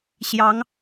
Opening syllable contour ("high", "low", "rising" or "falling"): rising